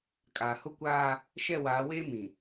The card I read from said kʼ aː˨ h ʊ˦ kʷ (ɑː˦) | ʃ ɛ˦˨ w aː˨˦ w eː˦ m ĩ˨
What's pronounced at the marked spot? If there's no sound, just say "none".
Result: aː˦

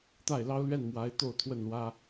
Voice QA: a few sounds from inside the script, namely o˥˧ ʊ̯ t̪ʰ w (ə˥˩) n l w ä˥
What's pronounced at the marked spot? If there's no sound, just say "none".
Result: ə˥˩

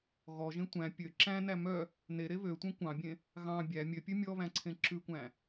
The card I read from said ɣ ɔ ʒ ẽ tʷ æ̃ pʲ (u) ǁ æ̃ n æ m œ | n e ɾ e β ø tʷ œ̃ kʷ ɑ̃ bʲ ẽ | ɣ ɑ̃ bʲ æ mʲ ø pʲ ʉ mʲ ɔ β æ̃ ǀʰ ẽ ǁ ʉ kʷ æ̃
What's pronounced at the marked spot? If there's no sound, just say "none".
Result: ø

